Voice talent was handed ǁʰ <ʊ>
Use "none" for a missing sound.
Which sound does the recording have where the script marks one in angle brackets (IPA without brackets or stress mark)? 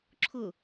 ʊ